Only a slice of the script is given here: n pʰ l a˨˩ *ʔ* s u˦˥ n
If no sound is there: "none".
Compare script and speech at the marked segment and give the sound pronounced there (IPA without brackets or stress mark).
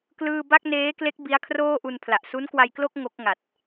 ʔ